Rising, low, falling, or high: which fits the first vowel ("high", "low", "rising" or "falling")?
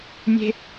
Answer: high